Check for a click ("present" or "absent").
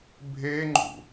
present